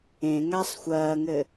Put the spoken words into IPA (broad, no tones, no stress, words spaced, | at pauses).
ẽŋasˤ xʷɐːŋɘ